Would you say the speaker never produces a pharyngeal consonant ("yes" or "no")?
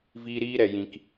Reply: yes